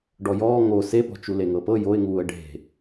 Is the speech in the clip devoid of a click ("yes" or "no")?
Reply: yes